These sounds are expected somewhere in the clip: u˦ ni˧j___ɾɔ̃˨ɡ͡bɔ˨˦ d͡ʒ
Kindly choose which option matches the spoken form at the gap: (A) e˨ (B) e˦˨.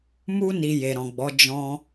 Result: A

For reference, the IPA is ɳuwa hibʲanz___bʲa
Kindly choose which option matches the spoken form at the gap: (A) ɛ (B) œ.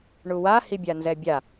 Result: A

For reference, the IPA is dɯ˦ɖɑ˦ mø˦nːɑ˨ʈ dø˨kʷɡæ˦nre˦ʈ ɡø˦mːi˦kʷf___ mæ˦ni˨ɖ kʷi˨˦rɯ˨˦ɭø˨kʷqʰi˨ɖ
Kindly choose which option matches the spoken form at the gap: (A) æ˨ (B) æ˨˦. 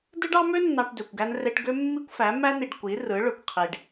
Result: B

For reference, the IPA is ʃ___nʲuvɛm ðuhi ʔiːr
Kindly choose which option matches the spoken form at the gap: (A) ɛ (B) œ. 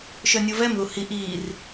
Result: B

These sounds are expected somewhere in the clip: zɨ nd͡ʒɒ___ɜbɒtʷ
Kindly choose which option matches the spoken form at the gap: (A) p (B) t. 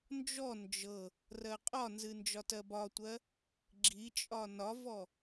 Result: B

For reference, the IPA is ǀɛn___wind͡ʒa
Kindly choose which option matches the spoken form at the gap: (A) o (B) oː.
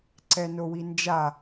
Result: A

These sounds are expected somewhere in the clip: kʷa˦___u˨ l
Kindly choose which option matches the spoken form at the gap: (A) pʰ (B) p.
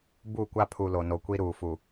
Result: A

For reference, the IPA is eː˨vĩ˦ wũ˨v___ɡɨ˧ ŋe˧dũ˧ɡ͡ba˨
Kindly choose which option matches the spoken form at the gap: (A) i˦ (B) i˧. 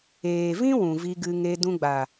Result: B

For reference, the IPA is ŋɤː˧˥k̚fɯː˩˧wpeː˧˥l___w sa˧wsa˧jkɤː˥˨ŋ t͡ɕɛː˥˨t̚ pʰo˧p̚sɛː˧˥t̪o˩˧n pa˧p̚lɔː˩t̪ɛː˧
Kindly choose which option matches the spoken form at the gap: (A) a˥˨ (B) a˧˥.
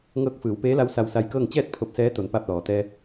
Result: B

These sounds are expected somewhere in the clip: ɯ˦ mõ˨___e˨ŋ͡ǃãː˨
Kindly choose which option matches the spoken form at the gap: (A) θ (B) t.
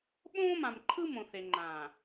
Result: A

